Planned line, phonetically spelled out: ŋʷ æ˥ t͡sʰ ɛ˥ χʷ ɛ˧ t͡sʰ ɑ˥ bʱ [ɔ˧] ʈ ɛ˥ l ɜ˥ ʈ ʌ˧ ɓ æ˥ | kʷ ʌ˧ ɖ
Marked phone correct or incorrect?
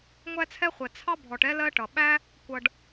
correct